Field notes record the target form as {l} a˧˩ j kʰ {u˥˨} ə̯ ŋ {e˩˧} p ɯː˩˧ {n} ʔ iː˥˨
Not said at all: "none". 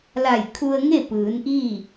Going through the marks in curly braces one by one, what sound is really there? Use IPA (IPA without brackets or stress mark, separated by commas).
l, u˧, e˥˨, n